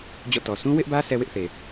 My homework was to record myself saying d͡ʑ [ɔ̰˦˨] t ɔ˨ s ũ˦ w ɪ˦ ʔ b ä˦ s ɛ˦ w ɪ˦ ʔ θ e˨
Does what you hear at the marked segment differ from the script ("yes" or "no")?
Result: no